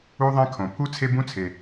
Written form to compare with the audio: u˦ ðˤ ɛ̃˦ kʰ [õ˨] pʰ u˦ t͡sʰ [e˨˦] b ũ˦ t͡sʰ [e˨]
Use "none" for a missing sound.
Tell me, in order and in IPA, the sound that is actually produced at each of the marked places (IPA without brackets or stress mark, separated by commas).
õ˨, e˦, e˦